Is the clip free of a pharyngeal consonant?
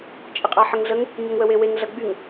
no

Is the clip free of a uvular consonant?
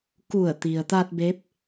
yes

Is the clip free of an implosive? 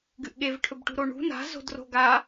no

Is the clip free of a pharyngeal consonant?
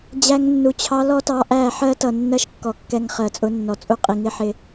no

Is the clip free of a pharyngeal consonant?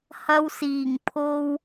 yes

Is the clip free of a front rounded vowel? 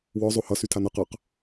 no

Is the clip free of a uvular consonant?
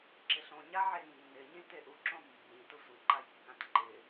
yes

